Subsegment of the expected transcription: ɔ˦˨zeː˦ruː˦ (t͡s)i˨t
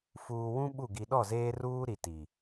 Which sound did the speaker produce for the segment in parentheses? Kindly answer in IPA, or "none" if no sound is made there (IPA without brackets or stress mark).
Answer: ɾ